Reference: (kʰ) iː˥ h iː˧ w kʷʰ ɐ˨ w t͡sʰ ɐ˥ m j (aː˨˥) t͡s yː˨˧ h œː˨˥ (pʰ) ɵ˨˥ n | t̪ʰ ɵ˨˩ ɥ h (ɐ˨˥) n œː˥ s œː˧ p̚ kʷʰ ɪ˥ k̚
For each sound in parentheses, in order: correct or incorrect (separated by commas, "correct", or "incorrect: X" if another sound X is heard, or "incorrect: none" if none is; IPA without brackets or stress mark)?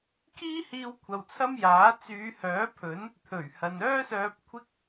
correct, correct, correct, incorrect: ɐ˨